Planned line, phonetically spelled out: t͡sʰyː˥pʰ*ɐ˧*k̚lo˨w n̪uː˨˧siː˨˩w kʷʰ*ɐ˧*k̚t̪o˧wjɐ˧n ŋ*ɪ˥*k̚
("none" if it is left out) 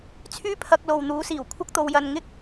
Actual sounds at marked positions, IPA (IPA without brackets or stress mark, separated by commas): ɐ˧, ɐ˥, ɪ˥